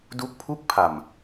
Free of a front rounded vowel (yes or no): yes